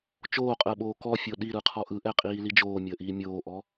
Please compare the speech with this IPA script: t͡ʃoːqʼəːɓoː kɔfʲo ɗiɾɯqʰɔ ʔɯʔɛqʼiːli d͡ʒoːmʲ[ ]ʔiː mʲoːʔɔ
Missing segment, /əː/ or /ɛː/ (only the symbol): əː